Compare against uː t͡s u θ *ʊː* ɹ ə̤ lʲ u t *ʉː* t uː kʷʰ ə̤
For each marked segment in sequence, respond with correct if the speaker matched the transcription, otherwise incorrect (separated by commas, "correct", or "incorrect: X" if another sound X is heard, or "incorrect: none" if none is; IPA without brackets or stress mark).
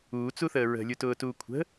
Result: incorrect: əː, incorrect: ʊː